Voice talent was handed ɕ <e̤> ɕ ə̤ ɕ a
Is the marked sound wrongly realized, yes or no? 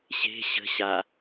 no